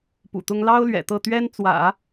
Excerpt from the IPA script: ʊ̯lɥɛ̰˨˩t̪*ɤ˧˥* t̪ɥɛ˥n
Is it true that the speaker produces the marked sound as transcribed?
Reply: no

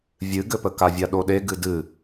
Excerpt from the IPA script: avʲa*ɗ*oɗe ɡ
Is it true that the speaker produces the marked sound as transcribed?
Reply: yes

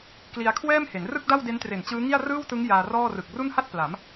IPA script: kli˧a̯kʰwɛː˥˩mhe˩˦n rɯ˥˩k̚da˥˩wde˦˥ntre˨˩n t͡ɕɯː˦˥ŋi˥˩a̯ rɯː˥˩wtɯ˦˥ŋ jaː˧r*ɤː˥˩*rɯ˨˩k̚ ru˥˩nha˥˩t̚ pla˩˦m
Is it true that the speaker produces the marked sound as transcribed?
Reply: no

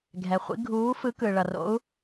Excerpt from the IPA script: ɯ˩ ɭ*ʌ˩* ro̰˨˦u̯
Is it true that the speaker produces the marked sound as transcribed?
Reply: yes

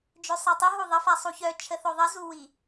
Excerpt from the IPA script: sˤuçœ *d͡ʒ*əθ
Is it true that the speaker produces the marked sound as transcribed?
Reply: no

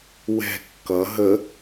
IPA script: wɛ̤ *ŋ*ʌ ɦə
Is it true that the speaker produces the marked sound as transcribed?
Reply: no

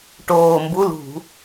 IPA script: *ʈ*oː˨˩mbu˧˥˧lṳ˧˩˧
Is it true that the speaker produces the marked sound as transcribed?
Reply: yes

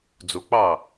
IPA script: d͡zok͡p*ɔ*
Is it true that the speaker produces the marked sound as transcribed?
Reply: no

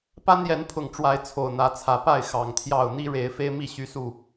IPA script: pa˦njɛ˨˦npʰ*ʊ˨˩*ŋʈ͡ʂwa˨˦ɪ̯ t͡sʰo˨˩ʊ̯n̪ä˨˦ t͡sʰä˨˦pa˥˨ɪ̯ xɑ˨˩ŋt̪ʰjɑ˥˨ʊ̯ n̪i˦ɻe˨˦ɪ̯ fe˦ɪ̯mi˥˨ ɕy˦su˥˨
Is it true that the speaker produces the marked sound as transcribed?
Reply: yes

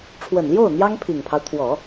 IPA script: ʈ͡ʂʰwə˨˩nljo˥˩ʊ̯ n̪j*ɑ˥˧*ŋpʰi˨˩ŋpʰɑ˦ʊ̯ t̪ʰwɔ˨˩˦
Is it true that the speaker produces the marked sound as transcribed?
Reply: no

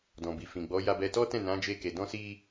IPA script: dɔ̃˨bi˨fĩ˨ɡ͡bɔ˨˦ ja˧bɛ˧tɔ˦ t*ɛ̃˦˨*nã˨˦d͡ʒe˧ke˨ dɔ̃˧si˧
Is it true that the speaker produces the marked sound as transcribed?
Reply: yes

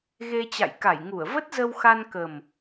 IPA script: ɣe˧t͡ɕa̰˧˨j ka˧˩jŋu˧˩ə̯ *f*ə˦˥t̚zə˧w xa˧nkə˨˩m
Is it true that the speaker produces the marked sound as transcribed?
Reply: no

